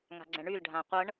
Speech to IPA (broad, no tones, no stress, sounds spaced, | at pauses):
ŋ a̤ ɡ͡ǀ ɛ̃ ɳ y l ɖʱ ã qʷ ɤ ɳ